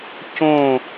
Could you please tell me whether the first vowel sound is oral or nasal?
nasal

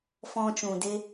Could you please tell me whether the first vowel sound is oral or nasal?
nasal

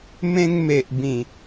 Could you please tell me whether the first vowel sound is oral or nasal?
nasal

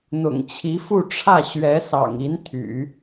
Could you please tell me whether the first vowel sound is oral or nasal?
oral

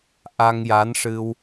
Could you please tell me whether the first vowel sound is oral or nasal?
oral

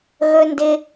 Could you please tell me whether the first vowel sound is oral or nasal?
oral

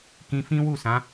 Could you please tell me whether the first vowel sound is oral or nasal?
nasal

